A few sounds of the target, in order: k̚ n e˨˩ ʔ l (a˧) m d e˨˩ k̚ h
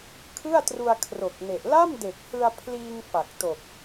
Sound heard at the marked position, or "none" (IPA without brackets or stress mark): a˥˩